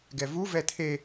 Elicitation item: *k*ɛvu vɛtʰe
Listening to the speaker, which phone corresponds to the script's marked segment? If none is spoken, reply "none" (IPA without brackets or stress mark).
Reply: ɡ